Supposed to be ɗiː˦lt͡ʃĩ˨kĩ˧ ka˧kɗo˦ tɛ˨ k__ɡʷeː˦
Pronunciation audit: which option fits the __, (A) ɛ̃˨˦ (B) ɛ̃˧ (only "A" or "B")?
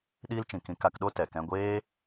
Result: B